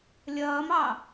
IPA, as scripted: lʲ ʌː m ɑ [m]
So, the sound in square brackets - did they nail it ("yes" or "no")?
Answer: no